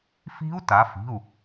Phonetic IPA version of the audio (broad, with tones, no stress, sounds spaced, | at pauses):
f i̤˦˥ u̯ t a˩˧ f i̤˩˧˩ u̯